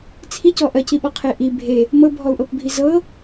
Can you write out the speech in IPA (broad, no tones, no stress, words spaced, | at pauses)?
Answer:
t͡sʰicɔ ʔɜciɓɔqʰe ʔi bʱe | mɤbʱɔu̯ʔɤpbʱi zɤ